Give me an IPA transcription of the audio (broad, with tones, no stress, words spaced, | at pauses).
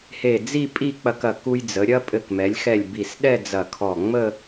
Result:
he˧˩d͡zi˥˧ pʼi˥˧k͡pɐ˧kɐ˧˩ ku˧j d͡zə˩˧ɾʲɐ˥ pʼɘ˧˩kmɛ˩˧lʲxɛ˧˩lʲ bi˧˩sɗɛ˥˧d͡zɐ˧˩kʰɔ˧˩ ŋ͡mə˥˧